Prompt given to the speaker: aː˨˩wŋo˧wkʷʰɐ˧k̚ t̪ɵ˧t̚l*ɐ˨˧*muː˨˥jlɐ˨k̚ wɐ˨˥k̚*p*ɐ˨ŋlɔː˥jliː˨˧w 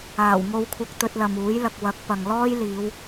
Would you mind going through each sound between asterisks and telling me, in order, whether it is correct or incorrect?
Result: incorrect, correct

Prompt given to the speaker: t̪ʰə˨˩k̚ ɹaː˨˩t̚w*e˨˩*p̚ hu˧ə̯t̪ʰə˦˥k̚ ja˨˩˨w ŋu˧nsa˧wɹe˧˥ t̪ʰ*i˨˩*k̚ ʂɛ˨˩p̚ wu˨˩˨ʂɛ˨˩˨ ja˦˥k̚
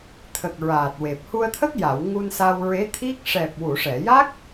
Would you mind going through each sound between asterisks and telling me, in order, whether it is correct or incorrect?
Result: correct, incorrect

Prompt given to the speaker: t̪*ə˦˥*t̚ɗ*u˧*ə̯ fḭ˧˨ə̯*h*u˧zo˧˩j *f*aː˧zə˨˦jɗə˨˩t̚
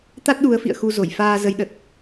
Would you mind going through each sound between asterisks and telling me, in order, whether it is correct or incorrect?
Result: incorrect, incorrect, incorrect, correct

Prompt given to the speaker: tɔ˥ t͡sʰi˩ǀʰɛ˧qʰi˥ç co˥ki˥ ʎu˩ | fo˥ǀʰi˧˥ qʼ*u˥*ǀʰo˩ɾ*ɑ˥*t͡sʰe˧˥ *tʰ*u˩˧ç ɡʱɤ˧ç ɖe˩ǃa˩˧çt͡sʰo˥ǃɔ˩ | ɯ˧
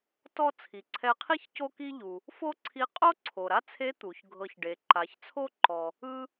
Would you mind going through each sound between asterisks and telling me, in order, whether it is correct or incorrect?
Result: incorrect, incorrect, incorrect

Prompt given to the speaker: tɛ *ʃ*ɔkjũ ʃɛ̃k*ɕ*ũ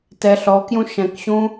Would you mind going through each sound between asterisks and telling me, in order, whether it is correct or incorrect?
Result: incorrect, correct

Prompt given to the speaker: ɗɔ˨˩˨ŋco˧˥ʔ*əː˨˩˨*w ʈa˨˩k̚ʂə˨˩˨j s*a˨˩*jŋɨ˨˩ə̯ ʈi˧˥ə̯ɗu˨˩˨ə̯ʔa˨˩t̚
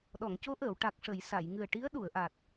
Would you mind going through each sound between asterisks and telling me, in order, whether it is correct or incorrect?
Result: correct, incorrect

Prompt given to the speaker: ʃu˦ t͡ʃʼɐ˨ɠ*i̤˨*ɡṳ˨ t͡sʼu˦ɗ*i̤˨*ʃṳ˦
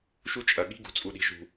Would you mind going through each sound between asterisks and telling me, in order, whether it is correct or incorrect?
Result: incorrect, incorrect

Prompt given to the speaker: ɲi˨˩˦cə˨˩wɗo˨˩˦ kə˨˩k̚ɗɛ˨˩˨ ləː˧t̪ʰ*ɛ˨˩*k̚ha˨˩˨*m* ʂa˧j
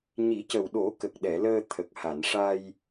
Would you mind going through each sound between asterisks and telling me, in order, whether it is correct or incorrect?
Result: incorrect, incorrect

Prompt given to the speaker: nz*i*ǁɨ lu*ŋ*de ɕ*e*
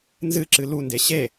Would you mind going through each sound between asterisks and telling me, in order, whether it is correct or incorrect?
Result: incorrect, incorrect, correct

